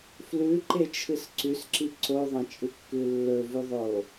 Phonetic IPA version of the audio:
f l ʉ ǃ e t͡ʃʰ ɨ s ǀ ʉ s ǁ i ǀ o ðˤ ɐ̃ t͡ʃʼ ɨ kː ʉ lː ɵ v ʉ ðˤ o

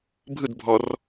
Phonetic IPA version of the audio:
bʱ ɯ d bʱ ɔ r

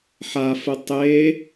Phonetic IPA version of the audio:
ħ a f ə tˤ e

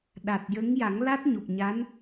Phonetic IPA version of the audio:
ɗ a˨˩ t̚ j ə˧˥ ŋ j a˨˩˦ ŋ l a˦˥ t̚ ɲ o˨˩ p̚ ɲ a˧˥ n

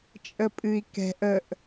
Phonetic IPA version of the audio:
t͡ʃʼ ə pʼ ɨ i̯ k ɛ̤ ʔ ə ʔ

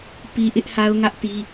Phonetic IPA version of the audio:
p i˦ ʔ ɪ˦ ʔ h a˦ ʊ̯ ŋ ä˦ ʔ t i˦

